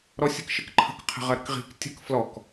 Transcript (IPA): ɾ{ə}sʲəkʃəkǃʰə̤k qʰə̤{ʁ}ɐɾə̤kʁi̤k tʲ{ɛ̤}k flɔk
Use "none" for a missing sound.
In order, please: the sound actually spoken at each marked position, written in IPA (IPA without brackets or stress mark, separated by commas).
ɔ, ʁ, ə̤